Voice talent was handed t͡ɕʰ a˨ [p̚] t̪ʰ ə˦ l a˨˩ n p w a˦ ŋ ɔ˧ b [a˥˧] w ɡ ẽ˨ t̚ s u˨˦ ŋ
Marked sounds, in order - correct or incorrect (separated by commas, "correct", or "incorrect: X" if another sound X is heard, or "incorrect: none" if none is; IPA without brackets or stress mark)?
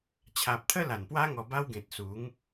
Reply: correct, incorrect: a˦